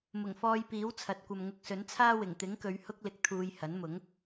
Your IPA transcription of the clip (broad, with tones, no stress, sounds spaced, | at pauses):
m ʊ˨˩ ŋ f ɔː˧ j p iː˨˥ w t͡sʰ ɐ˨˥ t̚ kʷ ɐ˧ m ŋ ʊ˧ k̚ s ɵ˨˥ n t͡sʰ aː˥ w ɪ˨˩ ŋ t̪ ɪ˨˥ ŋ k ɵ˨˧ ɥ h ʊ˥ k̚ l ɪ˧ k̚ t̪ʰ uː˧ j h ɐ˨˥ n m ʊ˨˥ ŋ